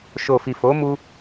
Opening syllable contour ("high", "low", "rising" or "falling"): low